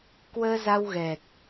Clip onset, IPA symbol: k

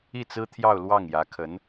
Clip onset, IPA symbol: i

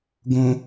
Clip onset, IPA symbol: ɡ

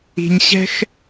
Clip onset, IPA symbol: i̤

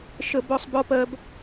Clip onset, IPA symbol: ʃ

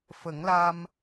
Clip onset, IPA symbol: f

